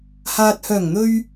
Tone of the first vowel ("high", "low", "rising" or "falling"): low